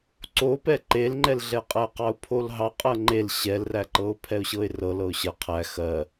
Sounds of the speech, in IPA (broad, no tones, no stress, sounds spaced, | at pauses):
ǀ o p ɛ ǃ e l ŋ͡ǃ ɛ l ɮ ɛ qʼ æ ə̯ q ɑ ʊ̯ pʰ o l ɦ ɑ qʼ ɜ ŋ͡ǃ e l ɕ ɛ l r æ ǃ ɤ ʊ̯ pʰ ɛ ʊ̯ ɕ ɤ ɪ̯ r ɤ l ɤ ʊ̯ ɕ ɜ qʰ æ x ɜ